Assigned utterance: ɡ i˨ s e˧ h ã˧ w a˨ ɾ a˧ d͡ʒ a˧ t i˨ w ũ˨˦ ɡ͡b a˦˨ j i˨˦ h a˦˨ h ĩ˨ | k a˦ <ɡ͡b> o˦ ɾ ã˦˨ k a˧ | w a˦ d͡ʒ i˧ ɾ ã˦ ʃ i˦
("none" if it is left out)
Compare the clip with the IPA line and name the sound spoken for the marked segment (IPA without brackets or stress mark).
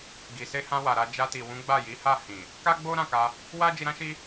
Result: ɡ͡b